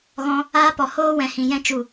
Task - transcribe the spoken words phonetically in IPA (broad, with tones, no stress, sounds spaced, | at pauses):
ɣ ɔ̃˧ | aː˦ p ɔ˨ h oː˦ w ɛ̃˨ h ĩ˨ j ɛ̃˦ t͡ʃ u˦˨